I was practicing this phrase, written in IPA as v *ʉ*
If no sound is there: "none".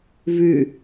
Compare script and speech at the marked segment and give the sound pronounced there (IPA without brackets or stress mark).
ʉ